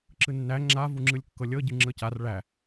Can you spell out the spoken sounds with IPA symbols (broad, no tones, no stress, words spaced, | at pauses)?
ǁɯnːæ ŋ͡ǁa vuŋ͡ǁɯlʲkːɤlʲɤ ɟɯŋ͡ǁɤcar ɭæ